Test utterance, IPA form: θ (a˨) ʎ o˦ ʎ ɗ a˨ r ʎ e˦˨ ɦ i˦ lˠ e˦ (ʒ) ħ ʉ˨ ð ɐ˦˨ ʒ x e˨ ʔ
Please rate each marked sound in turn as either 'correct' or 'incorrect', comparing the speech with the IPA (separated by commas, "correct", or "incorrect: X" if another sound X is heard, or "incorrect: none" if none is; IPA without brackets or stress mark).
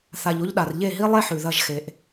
correct, incorrect: none